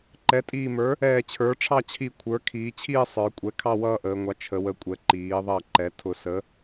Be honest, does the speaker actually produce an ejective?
yes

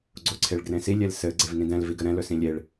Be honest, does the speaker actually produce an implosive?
no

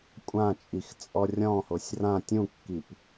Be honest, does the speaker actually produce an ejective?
yes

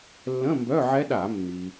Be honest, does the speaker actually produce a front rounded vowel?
yes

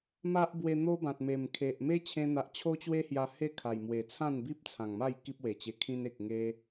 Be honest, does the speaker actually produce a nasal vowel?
yes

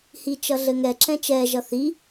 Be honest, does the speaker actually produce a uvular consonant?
no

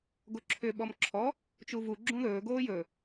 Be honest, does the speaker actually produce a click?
yes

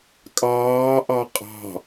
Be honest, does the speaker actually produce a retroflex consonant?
no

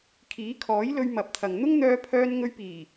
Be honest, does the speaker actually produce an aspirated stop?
yes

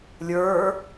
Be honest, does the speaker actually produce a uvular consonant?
no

